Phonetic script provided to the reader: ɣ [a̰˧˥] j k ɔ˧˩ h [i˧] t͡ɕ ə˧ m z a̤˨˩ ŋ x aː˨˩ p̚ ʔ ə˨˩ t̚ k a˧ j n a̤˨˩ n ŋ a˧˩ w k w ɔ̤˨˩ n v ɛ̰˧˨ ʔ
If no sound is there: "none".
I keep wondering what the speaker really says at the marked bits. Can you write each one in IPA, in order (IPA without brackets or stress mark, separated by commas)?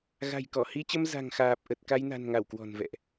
a̤˨˩, i˧